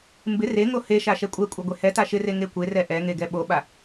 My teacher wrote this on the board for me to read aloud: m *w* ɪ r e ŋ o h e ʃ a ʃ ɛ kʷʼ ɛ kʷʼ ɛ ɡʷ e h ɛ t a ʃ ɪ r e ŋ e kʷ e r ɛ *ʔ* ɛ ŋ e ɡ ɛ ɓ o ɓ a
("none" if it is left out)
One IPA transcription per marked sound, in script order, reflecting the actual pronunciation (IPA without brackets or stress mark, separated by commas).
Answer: b, ʔ